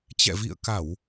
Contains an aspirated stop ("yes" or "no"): no